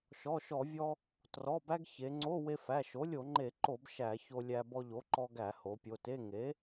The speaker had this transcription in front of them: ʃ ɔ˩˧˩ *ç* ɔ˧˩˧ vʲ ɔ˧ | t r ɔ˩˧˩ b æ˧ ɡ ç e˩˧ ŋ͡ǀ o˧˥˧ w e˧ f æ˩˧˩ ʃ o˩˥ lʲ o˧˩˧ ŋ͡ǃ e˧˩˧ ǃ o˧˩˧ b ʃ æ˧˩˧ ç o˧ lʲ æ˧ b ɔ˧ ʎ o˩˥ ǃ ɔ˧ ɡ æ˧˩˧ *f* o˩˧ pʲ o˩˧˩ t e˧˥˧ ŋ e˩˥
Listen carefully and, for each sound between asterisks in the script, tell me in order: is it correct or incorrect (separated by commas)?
incorrect, incorrect